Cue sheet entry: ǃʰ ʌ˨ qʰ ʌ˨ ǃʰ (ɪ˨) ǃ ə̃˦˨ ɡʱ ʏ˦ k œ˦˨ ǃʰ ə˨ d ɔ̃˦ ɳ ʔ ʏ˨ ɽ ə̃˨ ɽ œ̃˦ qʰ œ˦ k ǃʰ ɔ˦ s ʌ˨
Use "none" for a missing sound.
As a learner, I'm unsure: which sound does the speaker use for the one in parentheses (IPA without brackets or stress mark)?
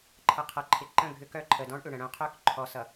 ɪ˨